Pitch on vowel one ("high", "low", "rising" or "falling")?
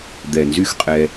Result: low